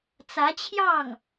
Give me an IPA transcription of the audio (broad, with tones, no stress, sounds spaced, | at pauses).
t͡s ä˧˥ t͡ɕʰ j ɑ˥˩ ŋ